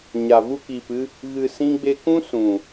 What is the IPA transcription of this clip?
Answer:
ɲ a˨ v u˧ k iː˨ p ɨ˧ | ɣ ɨ˧ s ĩ˦ ɡ͡b e˦ k ũ˦ s ũ˨

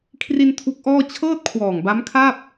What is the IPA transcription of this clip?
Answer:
kʰ r i˧ n tʰ u˦˥ k̚ ʔ ɔː˥˩ t͡ɕʰ ɤː˥˩ t̚ kʰ w ɔː˨˩ ŋ b a˦˥ m kʰ a˥˩ p̚

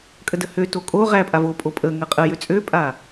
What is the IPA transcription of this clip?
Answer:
kʼ ə d ə h ø t o kʼ o ʁ æ pʼ a v o pʼ o pʼ ə ŋ ə qʼ ə j ø t͡sʼ ø pʼ a

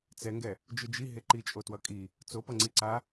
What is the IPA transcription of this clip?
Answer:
t͡s ɛ ŋ ɡ ɛ | d͡ʒ ɯ d͡ʒ i ɦ e ǃ i t͡ʃʼ o t w ʌ kʼ i | t͡s o p ʌ ŋ͡ǀ i ǀ a

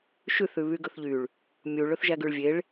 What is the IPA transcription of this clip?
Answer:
ʃ ʉ θ ʉ β y ɡ ɵ θ ʎ y ɭ | mʲ u ɭ ɵ θ ʒ æ ɡ ʉ ɭ vʲ e ɭ

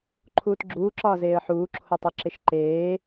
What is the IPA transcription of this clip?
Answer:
ǃʰ uː t ɡ͡ǁ uː ǁ ɒː z eː ə̯ ħ uː ǁʰ o tˤ u ǁ e ʃ ǃ eː

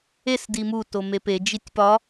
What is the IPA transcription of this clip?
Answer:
e s d i m u t o m e p e d͡ʒ i tʲ p ɒ

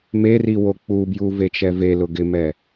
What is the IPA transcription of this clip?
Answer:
m e r i w o k͡p u b j u v e t͡ʃ ɛ v e l ʊ ɡ ɪ m ɛ

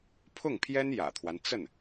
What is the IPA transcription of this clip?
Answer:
pʰ ʊ˥˩ ŋ pʰ j ɛ˥ n j ä̰˨˩ t̪ʰ w a˦ n t͡s ə˥˩ n

